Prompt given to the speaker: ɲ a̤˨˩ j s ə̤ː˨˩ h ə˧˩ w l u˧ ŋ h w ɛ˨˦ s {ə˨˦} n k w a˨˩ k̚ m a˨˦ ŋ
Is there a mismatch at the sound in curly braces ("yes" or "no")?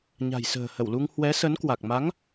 no